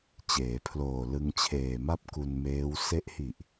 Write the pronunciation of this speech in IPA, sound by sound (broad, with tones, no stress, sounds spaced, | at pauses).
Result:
t͡ɕ eː˩˦ pʰ l oː˨˩ l ɯ˧ ŋ t͡ɕʰ eː˨˩ m a˥˩ p̚ k u˧ n m eː˦˥ w s e˦˥ ʔ h i˨˩ ʔ